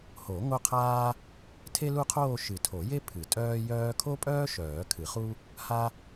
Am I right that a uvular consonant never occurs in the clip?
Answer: no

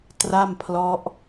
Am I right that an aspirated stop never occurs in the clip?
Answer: no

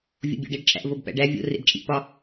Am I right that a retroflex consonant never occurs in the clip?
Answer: no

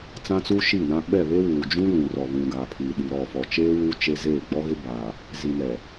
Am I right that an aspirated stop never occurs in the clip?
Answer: no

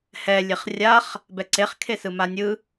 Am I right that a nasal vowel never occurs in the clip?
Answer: yes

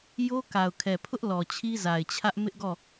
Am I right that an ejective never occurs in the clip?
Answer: yes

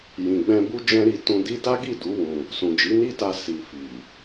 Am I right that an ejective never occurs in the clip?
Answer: yes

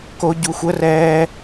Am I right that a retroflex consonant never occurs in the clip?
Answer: yes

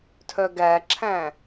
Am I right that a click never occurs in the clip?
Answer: no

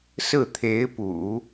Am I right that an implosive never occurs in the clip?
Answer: yes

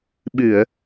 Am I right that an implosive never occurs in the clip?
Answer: no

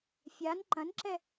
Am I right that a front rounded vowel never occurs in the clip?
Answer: yes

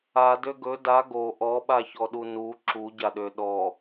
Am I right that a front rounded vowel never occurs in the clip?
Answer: no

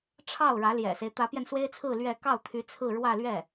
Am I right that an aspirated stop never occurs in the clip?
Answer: no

